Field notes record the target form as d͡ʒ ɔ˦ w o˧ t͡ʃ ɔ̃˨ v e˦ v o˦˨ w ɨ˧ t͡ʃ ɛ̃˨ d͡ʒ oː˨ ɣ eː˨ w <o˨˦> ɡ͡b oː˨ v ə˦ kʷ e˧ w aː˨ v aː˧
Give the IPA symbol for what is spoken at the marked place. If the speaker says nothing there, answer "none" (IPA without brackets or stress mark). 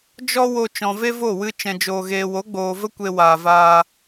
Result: o˨˦